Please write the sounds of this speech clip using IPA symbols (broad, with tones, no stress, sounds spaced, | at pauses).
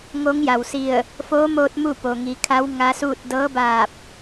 ŋ o˧˥ ŋ j a˩ w s i˧˩ ə̯ | f oː˧˥ m oː˧ t̚ m u˥˨ p o˩ ŋ i˩˧ kʰ a˧˥ w ŋ a˧˥ s uː˥˨ t̚ d ɤː˧˥ b aː˧˩ p̚